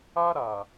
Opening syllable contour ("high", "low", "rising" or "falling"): high